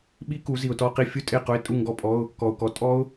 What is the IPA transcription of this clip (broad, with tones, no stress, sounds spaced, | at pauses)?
ɓ i˦˥ k u˩˧ z i˩ ʊ̯ t ɔ˧˥˧ q i˥˨ fʲ u˥˨ tʼ e˥˨ q ʊ˧˥˧ ɪ̯ tʼ u˥˨ ŋ ɡ ɔ˦˥ pʼ ɔ˧˥˧ ʊ̯ | k ɔ˩ ʊ̯ k ɔ˩˥ tʼ ɔ˦˥ ʊ̯